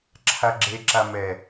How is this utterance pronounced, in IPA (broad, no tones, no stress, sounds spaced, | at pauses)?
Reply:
ǁʰ a ɡ͡ǁ e ǁ a m ɛ